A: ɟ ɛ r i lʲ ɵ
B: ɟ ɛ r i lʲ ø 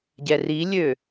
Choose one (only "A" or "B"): B